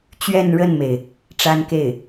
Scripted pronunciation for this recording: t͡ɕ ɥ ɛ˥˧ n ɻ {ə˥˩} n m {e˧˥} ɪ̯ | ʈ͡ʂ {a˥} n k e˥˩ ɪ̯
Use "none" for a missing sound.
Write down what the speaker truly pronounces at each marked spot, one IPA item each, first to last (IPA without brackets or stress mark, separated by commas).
ə˥˩, e˩, a˥